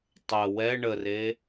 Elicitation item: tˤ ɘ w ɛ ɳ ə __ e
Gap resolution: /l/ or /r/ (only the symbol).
r